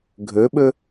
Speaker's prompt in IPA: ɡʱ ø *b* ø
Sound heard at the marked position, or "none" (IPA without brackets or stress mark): ɓ